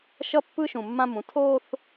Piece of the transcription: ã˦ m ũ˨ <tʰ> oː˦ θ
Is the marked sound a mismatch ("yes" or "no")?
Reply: no